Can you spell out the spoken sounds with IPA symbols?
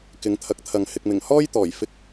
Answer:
k ɪ˨˧ ŋ t̪ʰ ɐ˨˥ k̚ t̪ʰ ɐ˨ ŋ h ɪ˨ k̚ m ɪ˨˩ ŋ h ɔː˥ j t̪ ɔː˨˩ j f ɪ˧ k̚

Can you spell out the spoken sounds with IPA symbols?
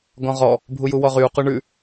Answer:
ɡ ɔ̃ ʁ ɔ | bʱ u j u w ɔ ʁ y u̯ q u ɳ ʉ

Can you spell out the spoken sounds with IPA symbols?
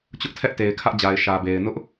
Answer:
t͡ɕ ʊ˦ ʔ tʰ ɛ˦ ʔ t e˨ ɪ̯ kʰ ä˦ ʔ d͡ʑ a˨ ɪ̯ ʃ ä˨ b e˨ ɪ̯ n ʊ˦ ʔ

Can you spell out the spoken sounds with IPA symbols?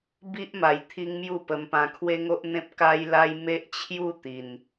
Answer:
b i˦ ʔ m a˨˩ j t̪ʰ i˦ ŋ m j u˥˧ p ə˧ m p ã˧ kʰ w e˦ ŋ o˦ ʔ n̪ ẽ˦ p̚ k a˦ j l a˦ j m e˦ ʔ t͡ɕʰ j u˥˧ t̪ i˨˩ n

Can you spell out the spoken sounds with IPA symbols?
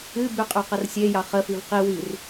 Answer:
ɨ b y qʼ y q ə r sʲ e j ɑ χ ə f i v q i w i r

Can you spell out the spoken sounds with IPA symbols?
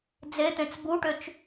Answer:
d͡z e t̪ ẽ t͡s b u ʈ ʏ t͡ʃ

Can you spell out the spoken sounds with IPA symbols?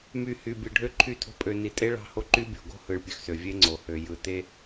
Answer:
m y˨ h y˨ bʲ ɯ˨ ɖʱ ø˦ ǃʰ y˦˨ tʰ o̤˦ pʼ ø˨ n i˨ tʼ e˦ ɭ ɑ̤˦ h o˦ ǃ y˦ bʲ o̤˨ ɡ o̤˦ h ɯ˨ ɭ pʲ ø˨ x s ø˨ vʲ e˦ ŋ͡ǀ o˨ h ø˨ j ɯ˨ t e˦

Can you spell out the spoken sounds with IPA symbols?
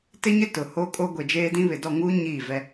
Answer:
t ɪ˦ ɲ ɪ˦ t ʊ˨ h o˦ kʼ o˦ ɡʷ e˨ d͡ʒ eː˦ d ĩ˦ β ɪ˨ d ɔ˦˨ ŋ uː˦ ɲ iː˦˨ v ɛ˦

